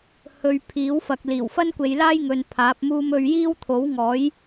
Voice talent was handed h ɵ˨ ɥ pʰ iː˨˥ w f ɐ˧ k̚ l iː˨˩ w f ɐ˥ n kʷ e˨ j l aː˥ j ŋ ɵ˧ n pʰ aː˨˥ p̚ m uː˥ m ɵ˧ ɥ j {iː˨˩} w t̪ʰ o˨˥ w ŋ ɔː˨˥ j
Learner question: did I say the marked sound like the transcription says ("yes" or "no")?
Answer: no